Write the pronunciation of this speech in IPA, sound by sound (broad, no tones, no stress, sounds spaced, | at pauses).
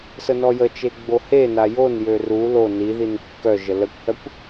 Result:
s ə n ɔ j ə t͡ʃ e ɡ͡b o h e n a j o n j ø r u l o n i ð i n kː œ ʒ ə l ə kʷ h œ kʷ